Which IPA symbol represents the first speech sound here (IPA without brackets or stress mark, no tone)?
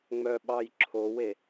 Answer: ŋ͡m